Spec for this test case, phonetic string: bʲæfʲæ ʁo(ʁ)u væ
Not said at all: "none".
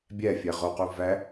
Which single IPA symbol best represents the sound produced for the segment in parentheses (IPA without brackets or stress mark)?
q